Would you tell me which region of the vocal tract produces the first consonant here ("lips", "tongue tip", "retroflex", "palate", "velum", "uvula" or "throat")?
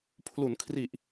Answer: lips